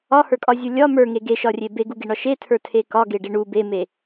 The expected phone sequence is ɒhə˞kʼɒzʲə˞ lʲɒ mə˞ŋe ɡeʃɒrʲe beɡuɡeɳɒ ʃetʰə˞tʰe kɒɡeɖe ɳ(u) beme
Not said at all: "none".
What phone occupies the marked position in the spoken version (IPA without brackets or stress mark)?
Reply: u